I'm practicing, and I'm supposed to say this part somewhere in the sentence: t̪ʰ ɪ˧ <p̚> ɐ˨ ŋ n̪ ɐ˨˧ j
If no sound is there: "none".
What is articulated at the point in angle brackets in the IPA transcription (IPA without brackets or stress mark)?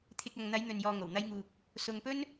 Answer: k̚